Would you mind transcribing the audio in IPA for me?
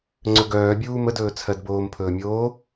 ŋ͡ǀ ɵ ɡ œː bʲ uː m ə d ɵː t͡sʰ ɜ d b oː m pʰ ɵː mʲ oː

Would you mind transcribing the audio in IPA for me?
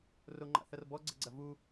r o ŋ͡ǃ a̰ θ ɐ r b ɔ ɡ͡ǀ ə ɡ͡ǀ ɐ v u

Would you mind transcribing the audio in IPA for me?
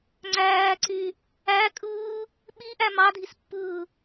ŋ͡ǀ æː ǀ y | æ kʼ ɯː | ɓ i ʔ æ m ɑ dʱ i s pː ɯː

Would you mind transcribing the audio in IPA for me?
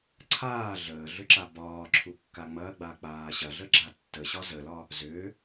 ǀʰ aː ɮ əː ɮ ʏ ǁ a b ɒː ǁʰ u kː a ŋ͡m ɐ ɡ͡b a k͡p aː ɕ ɐ ɮ ə ɡ͡ǁ a tː ə ɕ ɒ z ə l ɒ | z ʏː

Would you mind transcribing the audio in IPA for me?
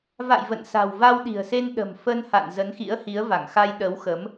v a̰˧˨ j v ə̰˧˨ n s a̤˨˩ w v a˧ w ɗ i̤˨˩ ə̯ s e˧ n ɗ ə̤˨˩ m f ə˧ n h a̰˧˨ n z ə˨˦ n x ḭ˧˥ ə̯ h i˨˦ ə̯ v a˧˩ ŋ x a˧ j ɗ ə˨˦ w x ə˨˦ m

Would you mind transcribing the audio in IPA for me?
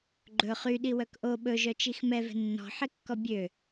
ɡ͡ǃ ɵ χ y ɗ i w œ k ʔ o ɓ ɵ ʒ œ t͡ʃ i x m ɛ v ɛ̤ nː ɔ̤ ħ e kː ɔ bʲ ø

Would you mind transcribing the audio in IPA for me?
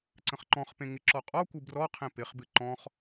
ǀ ə̃ χ ǃ ɔ̃ χ p ẽ ŋ ɪ ǁ ɔ qʼ ɔ kʷ ɨ b r ɔ qʰ ẽ p ɪ χ b ɨ ǃ ɔ̃ χ

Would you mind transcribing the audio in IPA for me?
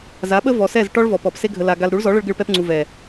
z a˨˦ ɓ ə˦ v ɔ˨ s ɛ˦˨ z ʈ ɔ˦ ɭ v ɔ˨ p ɔ˨ p s e˧ ɡʱ ə˨ l a˨ ɡ a˨ l ɾ u˨˦ ɭ z ɔ˨˦ ɭ ə˧ ɭ ɡ ɨ˧ ɭ p ɛ˧ p ŋ͡ǀ u˨ v ɛ˨

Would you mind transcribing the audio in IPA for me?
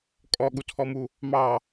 kʼ ɔ ɠ u tʰ ɔ m u | m ɑ

